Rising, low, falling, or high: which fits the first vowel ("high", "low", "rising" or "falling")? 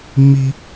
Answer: high